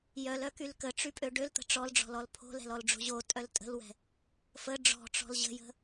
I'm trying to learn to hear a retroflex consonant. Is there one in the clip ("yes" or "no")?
yes